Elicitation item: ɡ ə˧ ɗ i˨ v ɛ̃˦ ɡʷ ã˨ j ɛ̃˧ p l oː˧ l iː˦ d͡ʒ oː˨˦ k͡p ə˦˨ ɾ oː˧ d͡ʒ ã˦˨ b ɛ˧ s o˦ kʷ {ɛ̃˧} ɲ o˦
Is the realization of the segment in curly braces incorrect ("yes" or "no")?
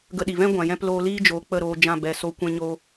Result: yes